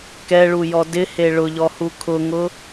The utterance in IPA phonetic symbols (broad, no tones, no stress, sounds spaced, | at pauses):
k ɛ ɭ u j ɔ d ɪ h e ɭ ʊ ʎ ɔ h u kʰ ʊ ŋ ʊ